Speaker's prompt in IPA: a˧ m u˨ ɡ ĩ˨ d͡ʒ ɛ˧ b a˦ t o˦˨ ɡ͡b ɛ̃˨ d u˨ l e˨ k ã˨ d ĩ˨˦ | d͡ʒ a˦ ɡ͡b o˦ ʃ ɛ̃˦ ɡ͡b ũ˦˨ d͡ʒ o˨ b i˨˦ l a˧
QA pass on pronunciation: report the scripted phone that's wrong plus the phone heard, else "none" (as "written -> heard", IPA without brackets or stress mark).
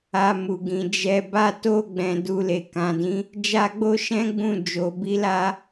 none